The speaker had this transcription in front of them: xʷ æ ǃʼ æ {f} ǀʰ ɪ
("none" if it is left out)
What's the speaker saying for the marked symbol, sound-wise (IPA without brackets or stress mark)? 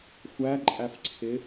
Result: f